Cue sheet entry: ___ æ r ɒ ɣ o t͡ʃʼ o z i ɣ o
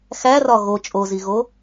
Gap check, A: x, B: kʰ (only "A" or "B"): A